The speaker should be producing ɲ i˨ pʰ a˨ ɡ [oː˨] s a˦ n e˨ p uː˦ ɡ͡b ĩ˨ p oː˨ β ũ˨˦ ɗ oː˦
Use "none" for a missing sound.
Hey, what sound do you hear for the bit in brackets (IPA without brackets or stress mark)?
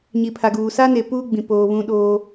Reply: uː˨